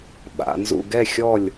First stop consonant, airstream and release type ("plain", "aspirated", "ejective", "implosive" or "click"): implosive